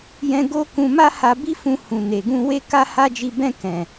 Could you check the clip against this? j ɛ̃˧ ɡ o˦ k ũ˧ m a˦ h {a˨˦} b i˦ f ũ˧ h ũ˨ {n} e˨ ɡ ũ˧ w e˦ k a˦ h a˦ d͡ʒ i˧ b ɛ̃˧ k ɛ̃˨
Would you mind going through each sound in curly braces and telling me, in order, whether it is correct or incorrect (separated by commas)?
incorrect, correct